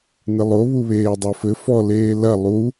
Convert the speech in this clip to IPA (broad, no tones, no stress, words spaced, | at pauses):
nɨlˠo βuβeːdˤofɘ fɔ leːlɐ lˠu